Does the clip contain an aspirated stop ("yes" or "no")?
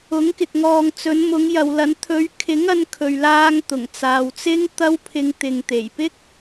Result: yes